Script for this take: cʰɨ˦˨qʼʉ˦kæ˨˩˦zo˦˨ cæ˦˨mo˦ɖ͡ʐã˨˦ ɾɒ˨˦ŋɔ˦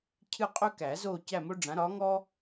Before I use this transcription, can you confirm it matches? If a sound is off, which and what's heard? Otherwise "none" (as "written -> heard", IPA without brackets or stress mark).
none